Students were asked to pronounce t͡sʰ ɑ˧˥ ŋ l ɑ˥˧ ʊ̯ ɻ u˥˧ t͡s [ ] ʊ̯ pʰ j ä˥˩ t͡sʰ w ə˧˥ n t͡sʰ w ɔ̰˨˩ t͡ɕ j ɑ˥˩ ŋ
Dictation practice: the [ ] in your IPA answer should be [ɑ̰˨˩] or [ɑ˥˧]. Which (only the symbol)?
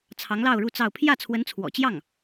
ɑ˥˧